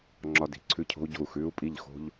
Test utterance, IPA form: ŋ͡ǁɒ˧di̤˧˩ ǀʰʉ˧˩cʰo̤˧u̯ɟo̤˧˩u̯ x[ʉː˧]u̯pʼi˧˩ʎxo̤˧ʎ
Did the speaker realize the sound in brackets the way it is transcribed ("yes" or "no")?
yes